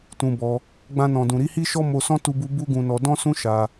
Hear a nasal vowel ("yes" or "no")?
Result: yes